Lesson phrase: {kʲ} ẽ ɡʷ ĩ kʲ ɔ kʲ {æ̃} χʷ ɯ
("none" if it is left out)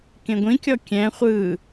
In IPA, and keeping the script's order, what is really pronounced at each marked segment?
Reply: k, ɛ̃

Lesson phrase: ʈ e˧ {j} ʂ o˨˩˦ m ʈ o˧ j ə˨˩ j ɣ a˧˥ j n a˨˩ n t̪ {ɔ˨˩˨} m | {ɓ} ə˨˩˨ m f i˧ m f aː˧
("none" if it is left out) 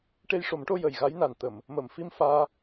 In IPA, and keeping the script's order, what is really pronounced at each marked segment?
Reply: j, ə˨˩˨, m

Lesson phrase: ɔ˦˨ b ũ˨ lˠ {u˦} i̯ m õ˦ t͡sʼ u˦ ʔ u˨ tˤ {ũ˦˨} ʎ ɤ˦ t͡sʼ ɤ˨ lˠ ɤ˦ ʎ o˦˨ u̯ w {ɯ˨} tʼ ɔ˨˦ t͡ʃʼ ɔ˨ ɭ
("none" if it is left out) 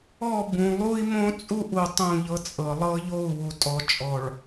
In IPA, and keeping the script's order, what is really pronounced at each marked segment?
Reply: u˦, ũ˦˨, u˨

